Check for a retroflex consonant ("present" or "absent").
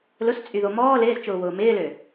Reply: absent